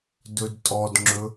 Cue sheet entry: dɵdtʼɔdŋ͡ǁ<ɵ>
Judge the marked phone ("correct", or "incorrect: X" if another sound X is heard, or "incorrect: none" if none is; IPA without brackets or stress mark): correct